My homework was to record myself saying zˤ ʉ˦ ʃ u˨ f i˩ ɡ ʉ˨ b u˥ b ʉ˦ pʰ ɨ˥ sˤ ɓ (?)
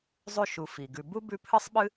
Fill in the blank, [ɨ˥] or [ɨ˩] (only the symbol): ɨ˥